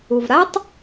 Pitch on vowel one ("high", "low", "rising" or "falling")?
low